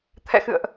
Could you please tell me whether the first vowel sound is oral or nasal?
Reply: oral